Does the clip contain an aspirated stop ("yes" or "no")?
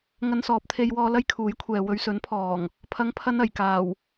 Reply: yes